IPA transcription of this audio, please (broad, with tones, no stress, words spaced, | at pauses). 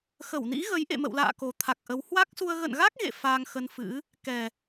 xə˧˩wnḭ˧˥ɣə˨˦j ʔḛ˧˨mə̰˧˨wla̰ː˧˨ ko˨˩t̪ʰa˨˩k̚ʔə˨˦w hwa˦˥k̚su˧ə̯ ɣə̰˧˨nɣa˦˥k̚ ɣḛ˧˨ faː˧ŋxə˧nfɨ̰˧˥ | kɛ˨˩